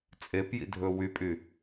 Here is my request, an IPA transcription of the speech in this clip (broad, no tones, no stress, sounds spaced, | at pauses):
t͡sʼ e p j ḭ dʱ ɵ w y pʼ y